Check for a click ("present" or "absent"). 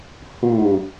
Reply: absent